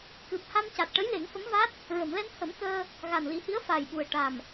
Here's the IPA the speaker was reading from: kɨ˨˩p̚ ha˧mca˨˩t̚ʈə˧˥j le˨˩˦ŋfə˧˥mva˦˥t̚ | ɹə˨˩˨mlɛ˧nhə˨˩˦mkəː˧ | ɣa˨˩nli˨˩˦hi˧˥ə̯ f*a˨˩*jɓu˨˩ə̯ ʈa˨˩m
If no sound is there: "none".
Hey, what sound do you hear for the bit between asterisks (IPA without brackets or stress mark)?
a˨˩